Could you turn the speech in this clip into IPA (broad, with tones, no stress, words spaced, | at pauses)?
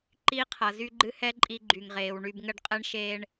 ǃi˦qʰʌ˨ zy˦ɡ͡ǃɨ˦hɛ˦ ǃʼi˦ɡ͡ǃy˨ŋʁeː˨w ɳy˨bŋə˦˨ɖqʼɛ˦ɳʃeː˦ɳ